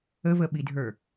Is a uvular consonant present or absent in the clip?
absent